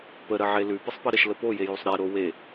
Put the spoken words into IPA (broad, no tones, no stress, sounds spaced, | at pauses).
p ə ɾ ə ʕ e l ʉ p ə sˤ p ə ɾ ə ʃ l ə p o j e j o sˤ ɾ e ɾ o w e